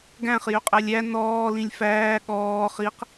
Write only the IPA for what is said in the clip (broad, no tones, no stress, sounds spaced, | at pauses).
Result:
ɡ æ̃ χ j ø qʼ æ lʲ æ n ɔː l ĩ lʲ f æː ɠ ɔː χ i q